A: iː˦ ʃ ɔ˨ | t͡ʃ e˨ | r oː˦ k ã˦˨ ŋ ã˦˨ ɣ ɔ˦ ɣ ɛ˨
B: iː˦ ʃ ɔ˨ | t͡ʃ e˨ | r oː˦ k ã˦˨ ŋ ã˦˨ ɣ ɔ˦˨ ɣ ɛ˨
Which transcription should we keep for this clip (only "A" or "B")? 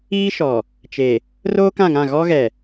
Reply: A